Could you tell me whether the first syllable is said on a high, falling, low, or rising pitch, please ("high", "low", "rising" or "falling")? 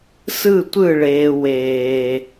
falling